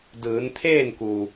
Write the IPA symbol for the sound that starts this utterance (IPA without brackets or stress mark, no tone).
d